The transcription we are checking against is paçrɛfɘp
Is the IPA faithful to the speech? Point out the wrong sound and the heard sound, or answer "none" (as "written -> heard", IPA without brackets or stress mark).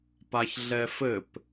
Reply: r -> ɮ